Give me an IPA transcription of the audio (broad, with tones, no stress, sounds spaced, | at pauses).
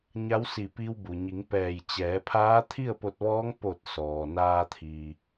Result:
ɲ a˧˥ w s i˧˩ p i˧ w b u˩ ɲ i˩˧ ŋ p ɛː˧˩ j t͡ɕ ɛː˩˧ pʰ aː˧˥ t̪ʰ i˥˨ ə̯ p o˧ t̚ ʋ ɔː˧˥ ŋ p o˧˩ t̚ s ɔː˩ n aː˧ t̪ʰ i˩